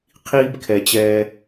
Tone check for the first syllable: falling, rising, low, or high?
high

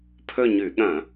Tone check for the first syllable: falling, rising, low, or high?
falling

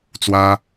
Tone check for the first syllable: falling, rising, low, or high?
high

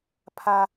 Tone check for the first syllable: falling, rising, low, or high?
high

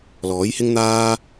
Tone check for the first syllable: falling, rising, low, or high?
rising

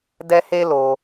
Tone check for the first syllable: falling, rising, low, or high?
high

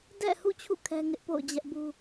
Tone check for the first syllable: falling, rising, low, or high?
falling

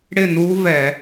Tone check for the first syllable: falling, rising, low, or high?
falling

